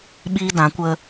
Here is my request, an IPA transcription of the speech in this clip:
ɓ iː˦ d ã˨˦ kʷ ə˦

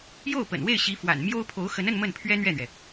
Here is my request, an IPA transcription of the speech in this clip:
j o˥˩ ʊ̯ p ə̰˨˩ n w e˥˩ ɪ̯ ɕ i˧˥ f w a̰˨˩ n m j o˥ ʊ̯ pʰ o˧˥ ʊ̯ x ə˧˥ n ə˥˧ n m ə˥˩ n pʰ ɥ ɛ˥ n̪ ɥ ɛ˥˩ n̪ ɥ ɛ˩

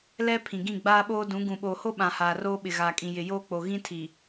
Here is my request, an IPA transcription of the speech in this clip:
l ɛ˦ pʰ ĩ˨ ɡ ĩ˦˨ ɡ͡b aː˦ ɓ oː˦ d ũ˨˦ ɡ ũ˨ ɓ oː˨ h o˦ ɓ ã˨ h aː˨ r oː˦ ɓ ɪ˨ ɣ aː˨ kʼ ĩ˨ j ɪ˨ j oː˦ k͡p o˨ ɣ ĩ˦ tʰ i˨

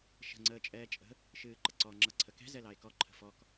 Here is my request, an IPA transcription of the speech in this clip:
ʃ ə̤ ŋ͡ǀ əː t͡ʃʼ ɛː t͡ʃʼ ə̤ | ʃ ɨː ǃ ə ǀ ɔ ŋ͡ǁ ʌ ǀʰ ə k ɛ̤ z ɛ l ɑ e̯ k ɔ ǃʰ ə̤ f ɔ k

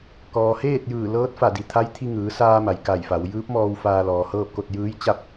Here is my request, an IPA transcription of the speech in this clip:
k ɔː˩ h eː˥˨ t̚ j ɯː˧˩ l ɤː˧˥ t̚ f a˧˩ d i˩ t̪ʰ a˧˥ j t̪ʰ i˧ ŋ ɯː˩˧ s aː˧ m a˩ j k a˧˩ j f a˩˧ w j ɯː˧˥ p̚ m ɔː˧ w f aː˧ l ɔː˩ h ɤː˥˨ p̚ k o˥˨ t̚ j ɯː˧˥ j t͡ɕ a˥˨ p̚

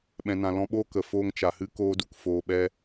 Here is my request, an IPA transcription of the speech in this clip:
ɓ ɛ̃˨ n ã˨ l ɔ̃˧ ɓ oː˦ k ə˨ f oː˧ ŋ t͡ʃ a˨ h ɨ˦ k oː˦ d u˧ k f oː˧ ɓ ɛ˦

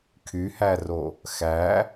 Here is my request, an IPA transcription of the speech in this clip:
kʰ y h æ r o | x æ

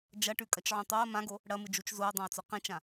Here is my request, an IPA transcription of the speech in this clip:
d͡ʒ ɐ ʈ ʉ kʼ ɐ t͡ʃ ʕ ũ tˤ o ɐ̯ m ã ɡ o | ɽ ɐ m ɨ d͡ʒ u t͡ʃ z o ɐ̯ dˤ ã ɐ̯ t͡s ɵ q ĩ t͡ʃ ã

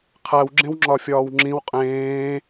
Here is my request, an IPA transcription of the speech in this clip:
qʰ æ w ɡ͡ǁ ẽ w ŋ͡ǁ ɒ fʲ ɒː w ŋ͡ǁ ĩ w qʼ ẽː

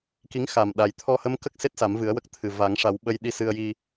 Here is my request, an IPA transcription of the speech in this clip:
k i˧˥ ŋ x a˨˩ m ɗ a˨˩ j t̪ʰ ɔ˧ h ə˧˥ m k ə˦˥ k̚ s e˦˥ t̚ s a˨˩˦ m v ɨ˨˩˦ ə̯ w ə˦˥ k̚ t̪ʰ ɨ˨˩ v a˨˩˦ ŋ ʂ a˨˩˦ w ɓ ə˧ j ɗ i˧ s ɨ˧ ə̯ j i˧

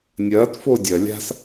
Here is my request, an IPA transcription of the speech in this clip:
nʲ ɐː t f o dʲ ɐ lʲ a̤ s

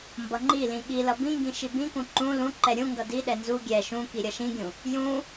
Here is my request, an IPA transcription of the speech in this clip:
m b ʌ ŋ͡ǃ i l ĩ ɠ i l ʌ b ĩ ŋ ɡ ĩ ʃ i b ĩ k ũ ǃ ũ l ũ ǃ ɛ ɾʲ ũ ŋ ɡ ʌ d i ɗ ɛ n z u ɡʲ ɛ ʃ ũ k i ɾʲ ʌ ʃ ĩ ɡʲ ũ | j ũ

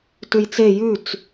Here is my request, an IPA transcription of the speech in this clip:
t ʉ j t͡s e j ʉ t͡s

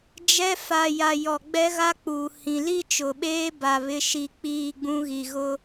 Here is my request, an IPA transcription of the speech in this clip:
d͡ʒ ɛ˦ f a˨ j a˨ j ɔ˨ ɡ͡b ɛ˦ ɣ a˦ k͡p uː˨ h ĩ˨ l i˦ t͡ʃ ʊ˨ ɓ eː˦ b a˨ β ɪ˦ ʃ i˦ k͡p iː˦˨ ɡ͡b ũ˦ ɣ i˨ ɣ ʊ˦

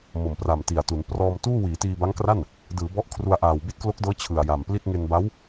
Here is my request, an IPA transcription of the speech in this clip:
m o˨˩ m p r a˨˩ m t i˨˩ a̯ t u˩˦ n p r ɔː˧ m t uː˥˩ w iː˩˦ t iː˧ b a˦˥ ŋ k r a˥˩ n | d ɯː˩˦ b ɔ˦˥ ʔ kʰ r u˧ a̯ ʔ aː˨˩ w b i˥˩ t̚ k l o˦˥ k̚ d ɤː˦˥ t͡ɕʰ ɯ˨˩ a̯ j a˨˩ m p l i˥˩ t̚ ŋ e˧ n b a˦˥ w

